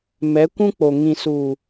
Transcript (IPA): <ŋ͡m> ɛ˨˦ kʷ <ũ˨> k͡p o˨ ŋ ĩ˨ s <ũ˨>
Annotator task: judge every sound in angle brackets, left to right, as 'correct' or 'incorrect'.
incorrect: m, incorrect: ũ˦, incorrect: u˨

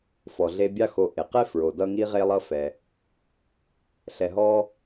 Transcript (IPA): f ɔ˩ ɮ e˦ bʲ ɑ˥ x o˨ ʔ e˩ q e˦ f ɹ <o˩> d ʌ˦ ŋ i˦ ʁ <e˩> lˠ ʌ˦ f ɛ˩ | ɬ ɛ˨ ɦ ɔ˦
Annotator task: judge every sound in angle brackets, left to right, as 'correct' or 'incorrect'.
correct, incorrect: e˦

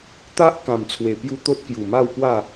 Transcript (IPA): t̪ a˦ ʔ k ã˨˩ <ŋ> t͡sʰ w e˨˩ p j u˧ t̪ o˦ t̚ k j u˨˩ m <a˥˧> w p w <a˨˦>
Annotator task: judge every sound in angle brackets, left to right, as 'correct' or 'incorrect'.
incorrect: m, correct, incorrect: a˥˧

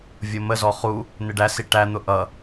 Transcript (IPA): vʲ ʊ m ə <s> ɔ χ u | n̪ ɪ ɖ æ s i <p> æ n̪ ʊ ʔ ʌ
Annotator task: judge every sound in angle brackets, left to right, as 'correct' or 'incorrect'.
incorrect: z, incorrect: ʈ

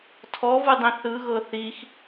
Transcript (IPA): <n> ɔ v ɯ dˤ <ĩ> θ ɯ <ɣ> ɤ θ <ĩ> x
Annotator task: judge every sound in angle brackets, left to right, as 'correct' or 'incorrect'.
incorrect: tʰ, correct, correct, incorrect: i

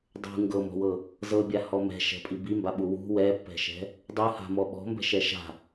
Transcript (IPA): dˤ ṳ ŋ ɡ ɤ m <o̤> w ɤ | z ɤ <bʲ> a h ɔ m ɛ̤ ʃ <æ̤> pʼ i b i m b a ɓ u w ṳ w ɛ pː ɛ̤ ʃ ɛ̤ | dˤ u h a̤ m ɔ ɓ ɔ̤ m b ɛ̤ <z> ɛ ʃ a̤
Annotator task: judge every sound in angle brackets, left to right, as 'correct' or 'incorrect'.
incorrect: ɔ̤, correct, incorrect: ɛ̤, incorrect: ʃ

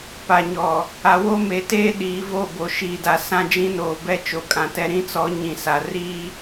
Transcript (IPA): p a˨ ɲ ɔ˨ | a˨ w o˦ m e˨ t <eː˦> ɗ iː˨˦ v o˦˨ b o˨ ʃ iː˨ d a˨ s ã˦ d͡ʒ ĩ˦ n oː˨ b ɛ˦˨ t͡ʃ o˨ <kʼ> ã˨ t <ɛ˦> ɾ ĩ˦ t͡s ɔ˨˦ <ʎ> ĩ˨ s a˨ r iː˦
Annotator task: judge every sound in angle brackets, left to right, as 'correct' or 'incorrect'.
correct, correct, correct, incorrect: ɲ

